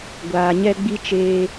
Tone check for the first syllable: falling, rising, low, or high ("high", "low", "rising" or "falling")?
low